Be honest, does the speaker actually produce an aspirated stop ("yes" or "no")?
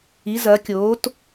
no